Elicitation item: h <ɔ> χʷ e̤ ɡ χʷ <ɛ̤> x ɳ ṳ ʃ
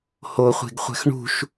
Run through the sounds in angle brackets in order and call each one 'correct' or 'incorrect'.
incorrect, correct

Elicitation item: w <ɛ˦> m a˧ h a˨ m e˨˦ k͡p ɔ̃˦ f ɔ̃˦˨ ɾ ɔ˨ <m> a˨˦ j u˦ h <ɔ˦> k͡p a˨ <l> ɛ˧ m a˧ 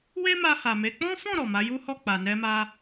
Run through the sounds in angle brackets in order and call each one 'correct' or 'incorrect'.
incorrect, correct, incorrect, incorrect

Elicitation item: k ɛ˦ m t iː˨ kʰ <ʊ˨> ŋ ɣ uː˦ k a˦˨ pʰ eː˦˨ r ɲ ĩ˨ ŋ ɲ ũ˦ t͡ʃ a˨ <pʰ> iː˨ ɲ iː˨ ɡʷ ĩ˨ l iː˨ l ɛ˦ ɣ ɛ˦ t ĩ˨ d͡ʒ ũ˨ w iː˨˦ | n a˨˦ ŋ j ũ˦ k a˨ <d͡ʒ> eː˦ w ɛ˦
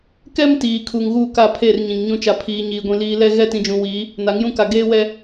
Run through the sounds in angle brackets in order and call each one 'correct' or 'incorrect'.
incorrect, correct, incorrect

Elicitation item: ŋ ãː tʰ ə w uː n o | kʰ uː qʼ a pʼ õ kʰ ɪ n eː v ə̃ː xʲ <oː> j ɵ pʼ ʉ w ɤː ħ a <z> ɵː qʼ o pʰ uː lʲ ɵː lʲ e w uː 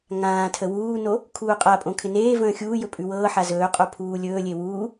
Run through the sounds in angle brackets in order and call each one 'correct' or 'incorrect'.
incorrect, correct

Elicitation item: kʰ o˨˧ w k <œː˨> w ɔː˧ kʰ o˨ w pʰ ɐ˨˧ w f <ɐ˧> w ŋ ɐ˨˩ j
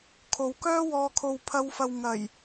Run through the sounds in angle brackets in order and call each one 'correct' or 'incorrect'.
incorrect, incorrect

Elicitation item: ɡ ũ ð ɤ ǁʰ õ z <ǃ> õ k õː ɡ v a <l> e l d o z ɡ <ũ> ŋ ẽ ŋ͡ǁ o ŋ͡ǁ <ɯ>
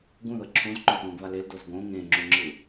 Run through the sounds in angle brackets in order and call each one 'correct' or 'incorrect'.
correct, correct, incorrect, correct

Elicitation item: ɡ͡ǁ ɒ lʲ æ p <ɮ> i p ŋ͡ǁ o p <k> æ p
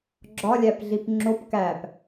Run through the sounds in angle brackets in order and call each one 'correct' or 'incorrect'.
correct, correct

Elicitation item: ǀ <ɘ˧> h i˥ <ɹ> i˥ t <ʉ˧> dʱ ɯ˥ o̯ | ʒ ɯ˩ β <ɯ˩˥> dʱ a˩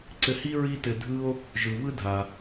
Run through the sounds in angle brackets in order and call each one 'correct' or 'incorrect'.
correct, correct, incorrect, incorrect

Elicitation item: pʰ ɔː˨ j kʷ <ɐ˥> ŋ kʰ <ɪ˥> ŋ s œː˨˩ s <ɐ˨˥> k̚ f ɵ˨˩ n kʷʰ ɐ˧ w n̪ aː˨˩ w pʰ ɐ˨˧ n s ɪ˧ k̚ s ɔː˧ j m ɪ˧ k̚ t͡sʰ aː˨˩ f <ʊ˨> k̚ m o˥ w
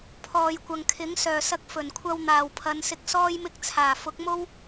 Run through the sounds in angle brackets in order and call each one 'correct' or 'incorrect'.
incorrect, incorrect, incorrect, incorrect

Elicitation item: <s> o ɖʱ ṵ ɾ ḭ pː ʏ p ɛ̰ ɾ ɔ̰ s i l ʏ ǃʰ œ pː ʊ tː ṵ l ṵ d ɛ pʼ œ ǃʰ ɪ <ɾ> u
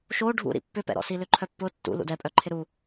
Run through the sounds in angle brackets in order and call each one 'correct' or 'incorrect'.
incorrect, correct

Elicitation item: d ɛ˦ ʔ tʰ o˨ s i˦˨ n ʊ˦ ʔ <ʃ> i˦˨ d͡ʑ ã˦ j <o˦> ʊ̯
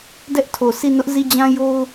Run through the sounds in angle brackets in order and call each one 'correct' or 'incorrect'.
incorrect, correct

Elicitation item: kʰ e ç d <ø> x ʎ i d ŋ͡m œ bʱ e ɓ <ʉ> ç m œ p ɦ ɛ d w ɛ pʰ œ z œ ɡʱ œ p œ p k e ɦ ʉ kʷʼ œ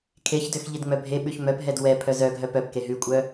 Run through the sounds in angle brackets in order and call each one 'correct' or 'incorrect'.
correct, correct

